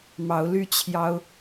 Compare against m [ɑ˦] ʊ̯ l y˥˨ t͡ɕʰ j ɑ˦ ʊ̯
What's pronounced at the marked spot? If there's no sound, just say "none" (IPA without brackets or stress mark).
ɑ˨˦